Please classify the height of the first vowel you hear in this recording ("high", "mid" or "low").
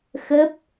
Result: mid